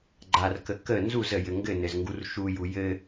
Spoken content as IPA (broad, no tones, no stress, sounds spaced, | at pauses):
ɡ͡ǃ a r k ə k ə n z u z ə j ɘ ŋ ɡ ɘ n ɘ z ŋ ɡ u r ʃ u j u j ɘ